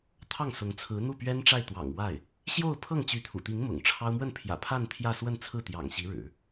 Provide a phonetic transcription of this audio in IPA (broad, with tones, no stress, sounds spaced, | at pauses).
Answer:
t̪ʰ ɑ˥˩ ŋ s ʊ˧˥ ŋ t͡sʰ ɹ̩˧˥ n̪ u˥˩ p ɥ ɛ˥ n ʈ͡ʂ a˥˩ ɪ̯ t̪ w ɑ̰˨˩ ŋ w a˥˩ ɪ̯ | ɕ j o˥˧ ʊ̯ pʰ ɤ˥˩ ŋ t͡ɕ y˧˥ t̪ʰ ṵ˨˩ t̪ i˧˥ ŋ m ʊ̰˨˩ ŋ ʈ͡ʂʰ ɑ˥ ʊ̯ m w ə˥˩ n pʰ j ä̰˨˩ pʰ a˥˧ n t̪ʰ j ä˥˧ s w ə˥˧ n t͡sʰ ɹ̩˥˩ t̪ j ɑ̰˨˩ ŋ ɕ i˧˥ ɻ ɻ̩˨˩˦